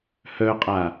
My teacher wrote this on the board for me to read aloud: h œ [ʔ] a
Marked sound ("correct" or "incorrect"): incorrect